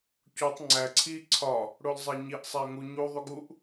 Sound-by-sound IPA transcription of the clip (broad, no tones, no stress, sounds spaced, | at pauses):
c u tˤ ŋ͡ǀ æ ǀʰ i ǀʰ ɒ | ɽ o l zˤ æ ɲ i ʔ sˤ æ ə̯ ŋ u ɲ u ðˤ u ɡ u ʔ